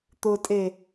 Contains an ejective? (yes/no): yes